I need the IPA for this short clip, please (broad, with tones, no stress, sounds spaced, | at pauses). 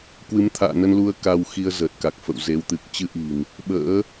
k w ɨ˨˦ m t̪ʰ a̰ː˧˨ n ə˧ n l u˧ ə̯ k a˧ w x i˧ ə̯ z əː˨˩ t̚ k a˨˩ k̚ f ə̰˧˨ w z e˨˦ w t̪ ɨ˨˩ k̚ t͡ɕ ɨ˧ ʔ i̤˨˩ n | ɓ ə̰ː˧˥